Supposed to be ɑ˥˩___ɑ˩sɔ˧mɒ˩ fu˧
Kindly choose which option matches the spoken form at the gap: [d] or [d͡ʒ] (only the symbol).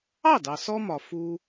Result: d